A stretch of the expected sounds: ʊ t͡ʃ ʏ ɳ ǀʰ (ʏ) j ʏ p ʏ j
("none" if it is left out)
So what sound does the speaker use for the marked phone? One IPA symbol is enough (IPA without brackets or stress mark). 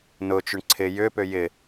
ɪ